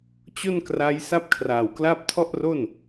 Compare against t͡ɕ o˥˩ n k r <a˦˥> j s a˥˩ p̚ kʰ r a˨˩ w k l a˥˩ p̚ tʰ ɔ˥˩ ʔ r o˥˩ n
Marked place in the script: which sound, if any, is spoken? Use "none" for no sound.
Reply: a˦˥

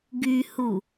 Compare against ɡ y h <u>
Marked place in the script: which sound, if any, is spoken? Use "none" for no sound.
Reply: u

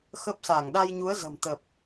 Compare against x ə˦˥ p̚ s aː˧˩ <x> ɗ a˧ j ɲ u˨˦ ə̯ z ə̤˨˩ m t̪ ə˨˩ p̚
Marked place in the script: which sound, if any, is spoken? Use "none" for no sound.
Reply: ŋ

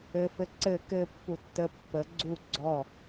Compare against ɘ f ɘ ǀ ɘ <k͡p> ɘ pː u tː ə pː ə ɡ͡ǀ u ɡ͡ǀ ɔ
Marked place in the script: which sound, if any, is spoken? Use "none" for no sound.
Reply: k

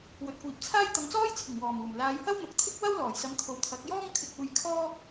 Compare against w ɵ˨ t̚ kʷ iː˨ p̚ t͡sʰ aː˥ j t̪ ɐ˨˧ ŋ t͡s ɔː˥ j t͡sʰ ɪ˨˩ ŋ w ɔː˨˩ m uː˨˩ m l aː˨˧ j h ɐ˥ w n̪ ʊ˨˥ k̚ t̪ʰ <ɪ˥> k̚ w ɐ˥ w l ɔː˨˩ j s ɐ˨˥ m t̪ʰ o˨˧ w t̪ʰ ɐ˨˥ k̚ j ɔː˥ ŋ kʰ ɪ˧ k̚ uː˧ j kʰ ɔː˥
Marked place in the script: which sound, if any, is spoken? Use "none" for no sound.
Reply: ɪ˥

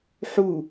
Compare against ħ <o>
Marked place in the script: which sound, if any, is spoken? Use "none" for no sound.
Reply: u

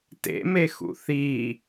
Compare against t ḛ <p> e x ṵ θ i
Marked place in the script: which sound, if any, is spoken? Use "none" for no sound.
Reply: m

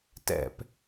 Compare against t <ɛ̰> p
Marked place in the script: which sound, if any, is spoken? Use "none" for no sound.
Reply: ɛ̰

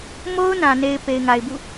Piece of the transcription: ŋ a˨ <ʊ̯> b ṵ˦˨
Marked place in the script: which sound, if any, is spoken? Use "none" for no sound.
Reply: ɪ̯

